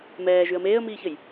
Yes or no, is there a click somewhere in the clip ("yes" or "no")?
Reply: no